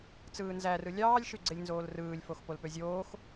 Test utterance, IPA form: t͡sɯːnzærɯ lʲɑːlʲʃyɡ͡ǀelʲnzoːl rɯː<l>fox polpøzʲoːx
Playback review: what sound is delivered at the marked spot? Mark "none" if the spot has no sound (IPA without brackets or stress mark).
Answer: lʲ